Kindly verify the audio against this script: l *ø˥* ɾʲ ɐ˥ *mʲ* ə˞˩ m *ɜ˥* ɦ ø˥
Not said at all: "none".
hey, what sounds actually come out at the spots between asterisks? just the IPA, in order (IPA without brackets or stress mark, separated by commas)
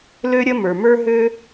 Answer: ø˥, m, ə˞˥